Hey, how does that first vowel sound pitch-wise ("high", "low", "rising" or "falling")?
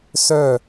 falling